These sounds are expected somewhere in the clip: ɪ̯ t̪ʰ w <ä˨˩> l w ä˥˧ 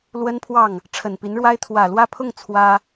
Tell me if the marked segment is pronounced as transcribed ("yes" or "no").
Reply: yes